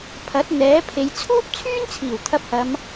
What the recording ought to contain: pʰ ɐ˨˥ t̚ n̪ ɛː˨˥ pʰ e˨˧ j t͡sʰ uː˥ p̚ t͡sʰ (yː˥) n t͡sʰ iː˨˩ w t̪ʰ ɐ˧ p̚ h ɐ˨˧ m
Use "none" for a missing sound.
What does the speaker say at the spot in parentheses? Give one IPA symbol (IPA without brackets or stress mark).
yː˥